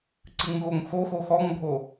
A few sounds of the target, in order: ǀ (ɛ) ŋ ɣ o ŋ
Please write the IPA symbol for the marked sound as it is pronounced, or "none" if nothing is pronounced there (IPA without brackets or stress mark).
ɨ